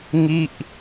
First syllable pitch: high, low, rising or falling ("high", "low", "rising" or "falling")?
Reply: falling